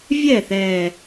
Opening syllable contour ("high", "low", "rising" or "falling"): falling